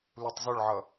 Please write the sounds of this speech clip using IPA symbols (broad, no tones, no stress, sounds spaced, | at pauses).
l u tˤ z ʊ ɭ ʕ ʌ